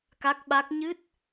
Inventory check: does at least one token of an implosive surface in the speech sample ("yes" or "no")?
yes